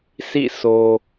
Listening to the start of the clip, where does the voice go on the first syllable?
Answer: falling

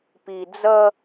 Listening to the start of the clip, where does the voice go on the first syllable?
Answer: low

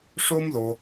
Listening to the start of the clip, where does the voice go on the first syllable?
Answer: high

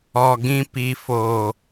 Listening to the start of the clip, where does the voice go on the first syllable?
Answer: low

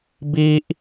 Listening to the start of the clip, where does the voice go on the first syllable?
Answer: high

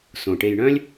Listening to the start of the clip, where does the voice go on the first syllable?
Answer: low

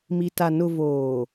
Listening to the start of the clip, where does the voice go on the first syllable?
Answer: low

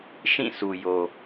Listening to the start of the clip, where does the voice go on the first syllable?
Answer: falling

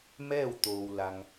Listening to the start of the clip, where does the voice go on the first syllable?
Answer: falling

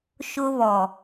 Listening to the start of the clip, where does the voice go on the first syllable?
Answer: high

